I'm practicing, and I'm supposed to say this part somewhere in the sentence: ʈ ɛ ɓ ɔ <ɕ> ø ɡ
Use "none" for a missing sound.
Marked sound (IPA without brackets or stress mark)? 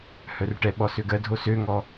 s